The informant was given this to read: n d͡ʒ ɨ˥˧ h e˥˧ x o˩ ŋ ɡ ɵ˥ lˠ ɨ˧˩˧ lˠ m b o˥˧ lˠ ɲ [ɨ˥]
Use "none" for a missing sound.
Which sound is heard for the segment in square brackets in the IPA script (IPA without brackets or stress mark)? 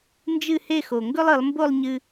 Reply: ɨ˧